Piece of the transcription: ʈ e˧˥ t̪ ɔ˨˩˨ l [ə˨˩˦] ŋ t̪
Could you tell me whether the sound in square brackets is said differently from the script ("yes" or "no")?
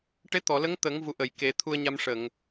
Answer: yes